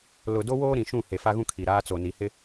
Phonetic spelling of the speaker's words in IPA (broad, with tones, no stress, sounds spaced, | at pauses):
l ʊ˨ d o˦ w oː˦ ɾ ĩ˨ ʃ ũ˦˨ h e˨ f a˦ ɣ ũ˦ kʰ i˨ ɾ aː˦ t͡s o˨ n i˨ h ɪ˦